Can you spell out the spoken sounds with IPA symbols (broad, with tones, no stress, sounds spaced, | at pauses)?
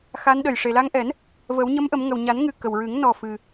x a˧˥ n ɗ ə˨˩ j ʂ e˨˩ l a˧ ŋ ʔ ɛ˨˩˦ n | v ə˨˩˦ w ɲ ə˧˥ m ʔ ə˨˩˦ m ŋ ə˨˩ w ɲ a˨˩˦ n ŋ ɨ˨˩ k ə˨˩ w ɹ ɨ˨˩˦ ŋ n ɔ˨˩ f ɨ˨˩